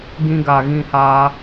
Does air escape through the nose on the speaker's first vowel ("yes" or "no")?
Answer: yes